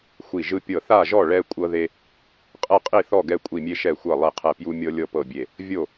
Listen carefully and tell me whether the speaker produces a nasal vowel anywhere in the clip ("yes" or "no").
no